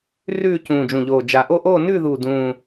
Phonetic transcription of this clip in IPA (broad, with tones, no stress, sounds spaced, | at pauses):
r ʉː˥˧ c ũː˨˩ d͡ʒ ũ˨˩ ʎ oː˨˩ d͡ʒ a˨˩ ʔ o˥˧ ʔ oː˥˧ n ʉː˥˧ ð uː˨˩ d ũː˨˩